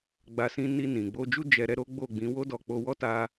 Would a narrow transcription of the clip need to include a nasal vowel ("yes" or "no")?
yes